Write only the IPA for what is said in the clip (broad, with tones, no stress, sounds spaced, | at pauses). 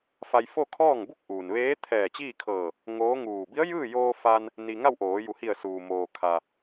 f a˧ j f o˥˨ kʰ ɔː˥˨ ŋ b u˥˨ k̚ ʔ uː˩ n ʋ eː˧˥ t̪ʰ ɛː˧˩ t͡ɕ iː˥˨ kʰ ɤː˧˩ | ŋ oː˧˥ ŋ uː˧˩ b i˧˥ ə̯ j ɯː˥˨ j oː˧ f a˧ n | n i˧ ŋ a˥˨ w ʔ oː˩˧ j u˩˧ h i˧˩ ə̯ s uː˩ m oː˩ kʰ a˩